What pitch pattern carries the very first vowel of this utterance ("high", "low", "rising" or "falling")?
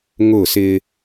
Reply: falling